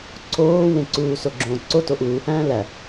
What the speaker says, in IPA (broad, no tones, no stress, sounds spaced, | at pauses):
ǀʰ oː w ẽ ǀ uː s o ɡ͡ǁ õː ǀ o t o ʔ uː h æ̃ː l æ